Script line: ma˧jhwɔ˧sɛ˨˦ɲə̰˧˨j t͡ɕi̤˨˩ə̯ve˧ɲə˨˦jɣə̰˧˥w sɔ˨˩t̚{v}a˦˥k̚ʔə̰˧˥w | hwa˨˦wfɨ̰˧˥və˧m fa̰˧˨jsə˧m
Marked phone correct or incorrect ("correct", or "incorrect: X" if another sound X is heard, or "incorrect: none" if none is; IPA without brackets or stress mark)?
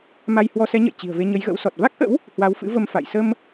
correct